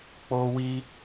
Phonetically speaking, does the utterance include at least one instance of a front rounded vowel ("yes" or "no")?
no